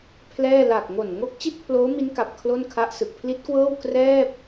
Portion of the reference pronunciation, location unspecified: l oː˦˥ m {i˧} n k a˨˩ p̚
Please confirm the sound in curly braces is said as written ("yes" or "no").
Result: no